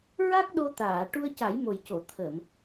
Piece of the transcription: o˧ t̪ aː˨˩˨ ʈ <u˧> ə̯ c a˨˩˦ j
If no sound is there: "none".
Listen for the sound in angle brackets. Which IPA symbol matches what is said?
u˧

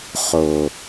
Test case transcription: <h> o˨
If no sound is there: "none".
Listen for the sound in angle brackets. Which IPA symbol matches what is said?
χ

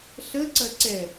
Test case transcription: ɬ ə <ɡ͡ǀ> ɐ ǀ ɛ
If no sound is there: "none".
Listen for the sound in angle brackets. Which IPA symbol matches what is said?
ǀ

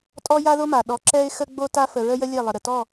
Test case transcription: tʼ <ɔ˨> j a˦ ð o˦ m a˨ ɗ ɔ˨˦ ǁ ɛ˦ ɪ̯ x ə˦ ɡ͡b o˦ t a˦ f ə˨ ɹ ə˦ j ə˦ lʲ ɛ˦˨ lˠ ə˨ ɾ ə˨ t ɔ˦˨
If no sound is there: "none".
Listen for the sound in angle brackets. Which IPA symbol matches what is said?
ɔ˦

